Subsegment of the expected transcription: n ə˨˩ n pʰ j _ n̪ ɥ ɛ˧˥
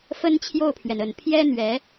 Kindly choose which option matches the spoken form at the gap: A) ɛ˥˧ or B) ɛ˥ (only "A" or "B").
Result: B